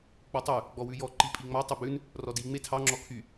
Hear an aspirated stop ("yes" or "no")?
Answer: yes